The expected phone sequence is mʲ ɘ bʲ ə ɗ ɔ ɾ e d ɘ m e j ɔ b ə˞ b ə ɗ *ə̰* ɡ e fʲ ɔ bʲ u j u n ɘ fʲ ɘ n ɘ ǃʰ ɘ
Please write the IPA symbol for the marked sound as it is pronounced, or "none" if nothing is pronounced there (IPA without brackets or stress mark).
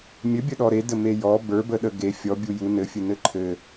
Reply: ə